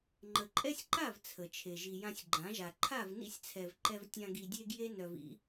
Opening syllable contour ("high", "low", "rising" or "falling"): low